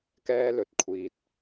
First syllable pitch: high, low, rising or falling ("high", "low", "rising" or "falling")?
high